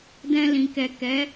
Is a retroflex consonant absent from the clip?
yes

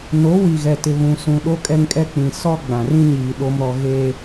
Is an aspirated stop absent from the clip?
yes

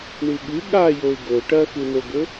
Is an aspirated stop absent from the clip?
yes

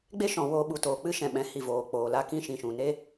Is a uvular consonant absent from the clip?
yes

